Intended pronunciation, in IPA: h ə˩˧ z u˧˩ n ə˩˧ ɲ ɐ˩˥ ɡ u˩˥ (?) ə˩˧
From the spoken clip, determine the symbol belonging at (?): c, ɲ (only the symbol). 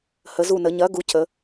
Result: c